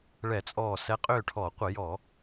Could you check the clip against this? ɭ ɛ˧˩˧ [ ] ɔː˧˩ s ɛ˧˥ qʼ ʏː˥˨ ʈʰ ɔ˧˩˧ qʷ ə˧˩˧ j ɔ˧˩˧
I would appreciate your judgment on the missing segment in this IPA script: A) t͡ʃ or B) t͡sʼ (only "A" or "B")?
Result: B